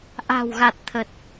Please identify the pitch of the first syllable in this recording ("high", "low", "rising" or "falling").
low